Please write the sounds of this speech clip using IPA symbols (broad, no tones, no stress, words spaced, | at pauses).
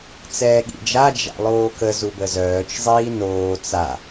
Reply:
t͡sɛːɠḭd͡ʒa d͡ʒa̰lˠoːkə zubəzœːt͡ʃzˤiː noː t͡sa